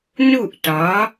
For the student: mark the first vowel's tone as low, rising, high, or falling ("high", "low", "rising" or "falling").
falling